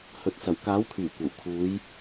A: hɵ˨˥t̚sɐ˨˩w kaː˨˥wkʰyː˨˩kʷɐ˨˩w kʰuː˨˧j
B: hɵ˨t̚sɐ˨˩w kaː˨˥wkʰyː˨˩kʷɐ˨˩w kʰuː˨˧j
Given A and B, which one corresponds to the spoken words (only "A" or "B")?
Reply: B